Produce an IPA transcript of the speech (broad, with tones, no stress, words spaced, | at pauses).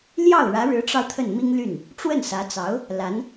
ljɑ˥˩ʊ̯ ɻä˧˥ɻɻ̩˧˥ʈ͡ʂɑ˧ʊ̯ t̪ʰə˥˩nmi˥ŋly˥˩n | ʈ͡ʂwə˥˩nsä˧˥t͡sɑ˧˥ʊ̯ | la˧˥n